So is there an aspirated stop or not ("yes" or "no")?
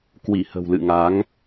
no